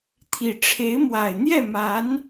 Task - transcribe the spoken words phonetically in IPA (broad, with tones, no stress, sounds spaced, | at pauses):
t̪ʰ i˨˩ ʈ͡ʂʰ e˧˥ ɪ̯ m w a˨˩ ɪ̯ n̪ j ɛ˥˩ m a˧˥ n